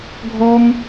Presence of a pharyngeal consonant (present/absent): absent